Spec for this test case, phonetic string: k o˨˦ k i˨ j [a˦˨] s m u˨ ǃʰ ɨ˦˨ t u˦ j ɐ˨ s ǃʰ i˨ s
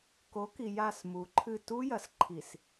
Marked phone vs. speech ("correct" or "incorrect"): correct